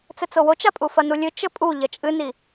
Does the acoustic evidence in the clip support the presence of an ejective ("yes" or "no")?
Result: yes